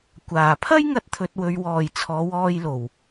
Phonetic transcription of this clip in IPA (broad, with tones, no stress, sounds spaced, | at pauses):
kʷ aː˨˩ pʰ ɐ˥ j ŋ ɐ˧ t̚ t̪ʰ ɵ˨ t̚ w ɵ˨ ɥ w ɔː˨˩ j t͡sʰ ɔː˨˧ w ɔː˧ j l o˨˩ w